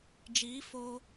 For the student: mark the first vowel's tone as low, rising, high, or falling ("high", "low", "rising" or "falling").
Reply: rising